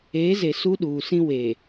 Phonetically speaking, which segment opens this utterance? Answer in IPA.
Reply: eː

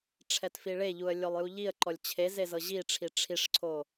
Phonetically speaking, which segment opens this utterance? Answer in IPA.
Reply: ʈ͡ʂʰ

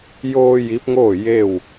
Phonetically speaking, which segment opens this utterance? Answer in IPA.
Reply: j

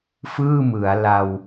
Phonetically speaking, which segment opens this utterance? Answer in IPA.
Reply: f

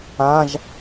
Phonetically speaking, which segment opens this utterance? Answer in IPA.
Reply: ã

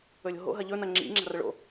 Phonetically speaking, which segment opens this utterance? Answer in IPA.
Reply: ɵ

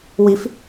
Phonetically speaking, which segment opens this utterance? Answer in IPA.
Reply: w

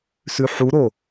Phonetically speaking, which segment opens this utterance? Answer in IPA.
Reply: s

